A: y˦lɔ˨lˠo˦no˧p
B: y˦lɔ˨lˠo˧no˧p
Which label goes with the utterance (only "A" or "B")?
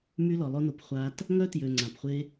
A